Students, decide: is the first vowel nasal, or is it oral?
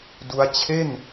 oral